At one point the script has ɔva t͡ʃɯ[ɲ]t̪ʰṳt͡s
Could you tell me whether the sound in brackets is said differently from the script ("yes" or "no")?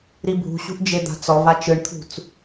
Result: yes